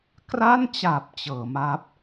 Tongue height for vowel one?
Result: low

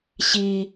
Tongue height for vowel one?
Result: high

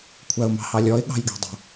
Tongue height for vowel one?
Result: low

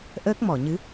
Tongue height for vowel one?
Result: mid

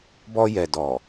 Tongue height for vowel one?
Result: mid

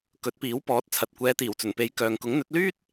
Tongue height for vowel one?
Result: mid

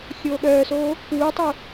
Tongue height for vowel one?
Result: mid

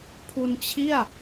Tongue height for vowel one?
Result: high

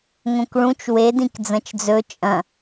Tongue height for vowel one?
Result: mid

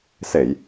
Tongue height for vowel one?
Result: mid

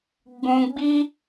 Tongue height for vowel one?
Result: high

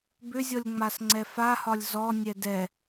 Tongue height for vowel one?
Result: high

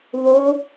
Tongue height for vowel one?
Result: mid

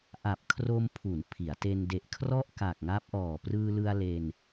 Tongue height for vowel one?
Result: low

